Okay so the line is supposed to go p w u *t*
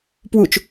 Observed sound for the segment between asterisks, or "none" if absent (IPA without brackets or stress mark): t͡ʃ